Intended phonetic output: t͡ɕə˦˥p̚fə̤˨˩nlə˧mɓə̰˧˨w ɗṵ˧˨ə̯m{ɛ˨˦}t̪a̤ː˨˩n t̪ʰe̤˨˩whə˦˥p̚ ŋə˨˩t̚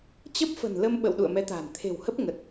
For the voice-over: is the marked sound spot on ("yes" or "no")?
yes